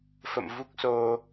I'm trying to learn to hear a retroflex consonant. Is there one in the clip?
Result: no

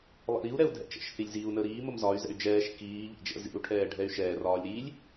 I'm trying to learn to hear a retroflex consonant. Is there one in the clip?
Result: yes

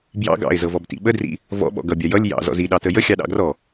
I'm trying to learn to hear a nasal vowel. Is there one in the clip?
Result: no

